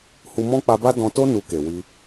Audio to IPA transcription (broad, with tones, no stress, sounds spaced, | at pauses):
h u˧ m ɔ̃˦ k͡p a˧ b a˦ d ɔ̃˧ t o˦ n u˧ k e˨ w i˧